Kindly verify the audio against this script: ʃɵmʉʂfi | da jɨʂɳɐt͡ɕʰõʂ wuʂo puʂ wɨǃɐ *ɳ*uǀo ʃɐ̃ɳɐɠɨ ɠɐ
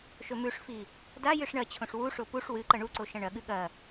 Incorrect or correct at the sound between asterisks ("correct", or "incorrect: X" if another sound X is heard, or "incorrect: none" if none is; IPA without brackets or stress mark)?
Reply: correct